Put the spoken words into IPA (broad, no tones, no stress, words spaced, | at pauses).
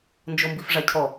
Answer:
nd͡ʒombifʐacʰɔ